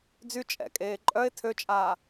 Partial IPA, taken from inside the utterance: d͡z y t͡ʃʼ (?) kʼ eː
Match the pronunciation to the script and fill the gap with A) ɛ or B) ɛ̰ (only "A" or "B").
B